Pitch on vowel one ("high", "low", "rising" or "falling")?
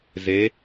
rising